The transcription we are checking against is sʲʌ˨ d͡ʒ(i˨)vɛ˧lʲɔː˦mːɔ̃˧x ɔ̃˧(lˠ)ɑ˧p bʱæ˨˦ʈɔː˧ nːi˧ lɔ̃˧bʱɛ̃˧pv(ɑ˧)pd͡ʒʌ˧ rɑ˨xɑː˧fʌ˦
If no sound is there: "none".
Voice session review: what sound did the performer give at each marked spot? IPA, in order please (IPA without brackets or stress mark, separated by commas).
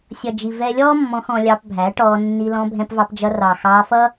i˨, lʲ, ɑ˧